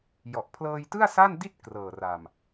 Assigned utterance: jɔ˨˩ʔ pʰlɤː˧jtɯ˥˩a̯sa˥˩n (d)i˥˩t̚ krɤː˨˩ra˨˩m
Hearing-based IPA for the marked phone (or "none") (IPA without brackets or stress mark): d